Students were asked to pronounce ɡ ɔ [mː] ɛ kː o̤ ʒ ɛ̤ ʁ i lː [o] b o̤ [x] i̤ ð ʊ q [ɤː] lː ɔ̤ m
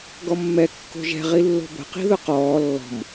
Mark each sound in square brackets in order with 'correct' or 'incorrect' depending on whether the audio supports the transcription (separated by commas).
correct, incorrect, incorrect, incorrect